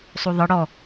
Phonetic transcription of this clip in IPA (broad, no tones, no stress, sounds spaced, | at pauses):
sˤ u ðˤ ɯ ɽ ɔ